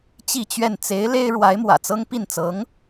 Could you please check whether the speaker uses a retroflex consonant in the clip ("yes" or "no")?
yes